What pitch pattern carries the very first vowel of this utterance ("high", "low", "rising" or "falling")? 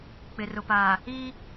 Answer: low